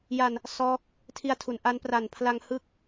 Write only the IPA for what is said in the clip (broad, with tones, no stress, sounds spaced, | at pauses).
j a˧ n | s ɔː˦˥ k̚ | tʰ i˧ a̯ tʰ u˩˦ n ʔ a˦˥ n p r a˨˩ n pʰ l a˧ ŋ h ɯ˦˥ k̚